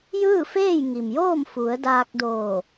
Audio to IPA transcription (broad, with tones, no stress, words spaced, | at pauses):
jɯː˥˨feː˥˨jŋi˩mjoː˥˨m fu˩˧ə̯daː˧k̚doː˧˩